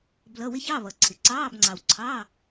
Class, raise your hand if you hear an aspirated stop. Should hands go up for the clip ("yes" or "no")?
yes